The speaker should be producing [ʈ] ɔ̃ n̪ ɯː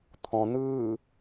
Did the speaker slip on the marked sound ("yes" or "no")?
yes